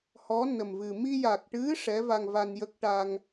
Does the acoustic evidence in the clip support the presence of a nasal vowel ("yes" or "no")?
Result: no